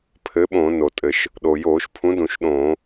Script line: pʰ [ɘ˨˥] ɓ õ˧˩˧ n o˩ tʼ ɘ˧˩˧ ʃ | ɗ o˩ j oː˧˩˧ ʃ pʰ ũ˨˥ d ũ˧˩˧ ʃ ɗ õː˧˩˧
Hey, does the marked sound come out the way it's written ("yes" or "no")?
yes